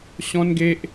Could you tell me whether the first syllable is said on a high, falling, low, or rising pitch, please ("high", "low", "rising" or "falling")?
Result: high